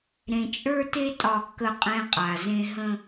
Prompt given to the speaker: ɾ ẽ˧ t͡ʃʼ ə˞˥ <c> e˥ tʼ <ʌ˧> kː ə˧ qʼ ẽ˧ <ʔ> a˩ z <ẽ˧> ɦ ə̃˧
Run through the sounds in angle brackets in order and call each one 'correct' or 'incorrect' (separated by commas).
incorrect, incorrect, incorrect, correct